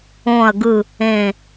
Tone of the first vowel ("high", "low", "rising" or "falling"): falling